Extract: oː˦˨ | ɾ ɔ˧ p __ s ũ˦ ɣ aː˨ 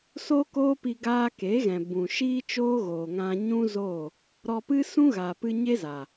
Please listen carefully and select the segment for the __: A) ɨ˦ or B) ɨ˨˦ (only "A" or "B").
A